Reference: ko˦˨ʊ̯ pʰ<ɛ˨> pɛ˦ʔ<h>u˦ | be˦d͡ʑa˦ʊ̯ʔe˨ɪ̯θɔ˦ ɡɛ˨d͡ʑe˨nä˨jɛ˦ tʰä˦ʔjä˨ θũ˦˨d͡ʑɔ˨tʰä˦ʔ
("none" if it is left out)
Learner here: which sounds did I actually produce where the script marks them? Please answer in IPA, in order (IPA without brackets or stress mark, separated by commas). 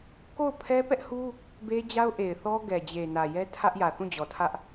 ɛ˦, h